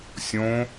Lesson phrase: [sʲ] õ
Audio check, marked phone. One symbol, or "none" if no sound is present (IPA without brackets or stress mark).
sʲ